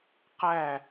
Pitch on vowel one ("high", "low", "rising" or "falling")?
falling